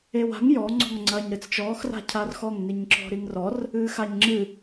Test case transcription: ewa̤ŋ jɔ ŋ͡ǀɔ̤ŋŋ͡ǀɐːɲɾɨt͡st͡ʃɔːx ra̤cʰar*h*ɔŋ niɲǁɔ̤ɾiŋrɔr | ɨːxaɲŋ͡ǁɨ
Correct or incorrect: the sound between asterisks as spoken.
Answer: incorrect: x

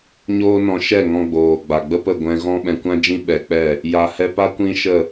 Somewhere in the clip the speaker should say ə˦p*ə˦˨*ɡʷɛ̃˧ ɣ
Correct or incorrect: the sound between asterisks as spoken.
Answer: correct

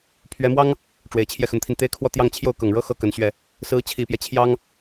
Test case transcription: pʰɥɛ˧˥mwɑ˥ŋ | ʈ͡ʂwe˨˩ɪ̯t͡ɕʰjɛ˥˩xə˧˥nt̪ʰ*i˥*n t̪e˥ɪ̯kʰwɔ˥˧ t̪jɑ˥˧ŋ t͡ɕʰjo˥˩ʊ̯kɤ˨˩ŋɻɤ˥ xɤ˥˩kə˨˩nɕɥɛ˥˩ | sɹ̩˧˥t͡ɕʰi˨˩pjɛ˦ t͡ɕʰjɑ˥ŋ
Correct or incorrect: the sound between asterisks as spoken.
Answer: incorrect: i˧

